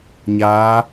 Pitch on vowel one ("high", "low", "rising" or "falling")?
rising